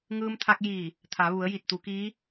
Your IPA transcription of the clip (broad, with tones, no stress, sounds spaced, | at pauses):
ŋ ɯː˧ m t̪ʰ a˧ k̚ j iː˧˩ | t̪ʰ a˩˧ ʋ u˩˧ ə̯ j i˧˩ t̚ t̪ u˩˧ k iː˧˥